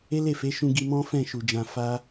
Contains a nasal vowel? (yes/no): yes